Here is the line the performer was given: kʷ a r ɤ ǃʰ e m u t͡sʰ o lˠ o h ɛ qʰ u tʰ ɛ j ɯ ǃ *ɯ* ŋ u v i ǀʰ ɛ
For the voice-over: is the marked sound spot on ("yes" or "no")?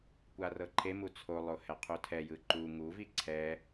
no